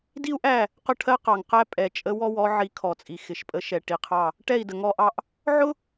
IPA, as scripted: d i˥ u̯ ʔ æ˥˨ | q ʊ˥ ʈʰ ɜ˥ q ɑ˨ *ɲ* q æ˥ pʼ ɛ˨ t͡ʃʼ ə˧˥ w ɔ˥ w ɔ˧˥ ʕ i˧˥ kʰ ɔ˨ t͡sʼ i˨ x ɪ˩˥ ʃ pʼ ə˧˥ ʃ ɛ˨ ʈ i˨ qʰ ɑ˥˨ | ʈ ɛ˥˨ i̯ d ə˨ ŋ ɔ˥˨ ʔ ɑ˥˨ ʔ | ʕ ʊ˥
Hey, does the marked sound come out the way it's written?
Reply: no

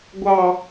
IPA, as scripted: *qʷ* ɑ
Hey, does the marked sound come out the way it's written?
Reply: no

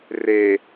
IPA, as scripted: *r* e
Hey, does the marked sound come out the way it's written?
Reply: yes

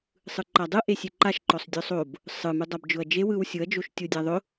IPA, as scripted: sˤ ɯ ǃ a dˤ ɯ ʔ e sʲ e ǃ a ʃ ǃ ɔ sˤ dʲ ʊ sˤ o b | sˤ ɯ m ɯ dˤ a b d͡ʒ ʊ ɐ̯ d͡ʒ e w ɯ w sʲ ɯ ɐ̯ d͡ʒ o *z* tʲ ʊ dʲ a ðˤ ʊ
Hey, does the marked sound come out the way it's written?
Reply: no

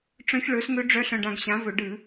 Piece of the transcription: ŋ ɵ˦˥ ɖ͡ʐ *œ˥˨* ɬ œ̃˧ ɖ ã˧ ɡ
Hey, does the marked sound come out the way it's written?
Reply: no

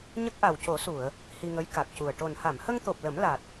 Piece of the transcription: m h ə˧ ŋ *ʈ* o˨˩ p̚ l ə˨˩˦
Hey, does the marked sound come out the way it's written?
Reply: no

